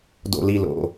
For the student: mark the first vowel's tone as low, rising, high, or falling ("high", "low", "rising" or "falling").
high